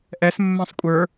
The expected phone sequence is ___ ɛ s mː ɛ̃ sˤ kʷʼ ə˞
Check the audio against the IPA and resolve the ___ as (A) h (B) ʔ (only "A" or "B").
B